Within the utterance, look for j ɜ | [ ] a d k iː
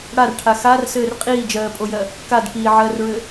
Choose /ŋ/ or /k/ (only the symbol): k